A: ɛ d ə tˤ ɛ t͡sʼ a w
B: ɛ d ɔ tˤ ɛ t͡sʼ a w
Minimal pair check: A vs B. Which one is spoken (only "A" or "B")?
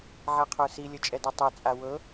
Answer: B